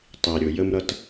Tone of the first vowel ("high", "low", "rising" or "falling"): low